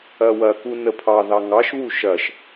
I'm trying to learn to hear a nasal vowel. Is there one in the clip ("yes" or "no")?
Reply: no